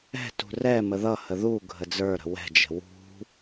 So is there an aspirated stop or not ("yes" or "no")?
no